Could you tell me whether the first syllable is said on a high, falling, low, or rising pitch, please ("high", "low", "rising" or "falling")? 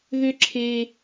high